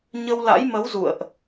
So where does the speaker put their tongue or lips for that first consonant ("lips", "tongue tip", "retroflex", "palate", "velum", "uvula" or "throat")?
palate